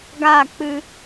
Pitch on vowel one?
falling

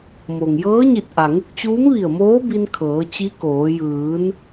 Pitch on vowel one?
low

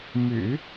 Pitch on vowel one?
low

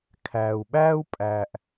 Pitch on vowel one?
low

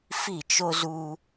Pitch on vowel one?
falling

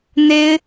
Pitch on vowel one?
high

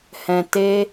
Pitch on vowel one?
low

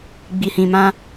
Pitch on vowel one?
low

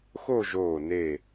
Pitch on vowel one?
falling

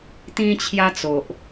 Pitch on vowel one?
high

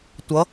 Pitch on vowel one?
rising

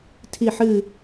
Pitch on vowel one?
falling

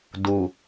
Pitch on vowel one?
low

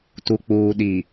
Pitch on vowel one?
low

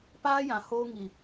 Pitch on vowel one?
high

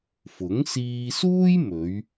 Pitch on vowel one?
rising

